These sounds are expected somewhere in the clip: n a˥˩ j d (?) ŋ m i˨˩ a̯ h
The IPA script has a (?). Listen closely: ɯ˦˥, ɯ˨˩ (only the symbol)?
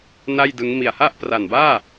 ɯ˦˥